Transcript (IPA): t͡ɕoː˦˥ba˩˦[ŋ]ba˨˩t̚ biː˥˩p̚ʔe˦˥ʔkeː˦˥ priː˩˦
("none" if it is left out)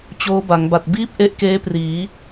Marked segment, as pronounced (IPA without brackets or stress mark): ŋ